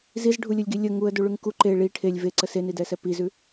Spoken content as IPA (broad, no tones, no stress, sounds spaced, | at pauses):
z i z ɖʱ u lʲ ə lʲ ɡ i lʲ ə ŋ u ə̯ d u ɭ ʉ ŋ k u ǃ e ɭ i ʈʰ e lʲ v e ǀ ə s e n i d ɛ s ɛ p i z ʉ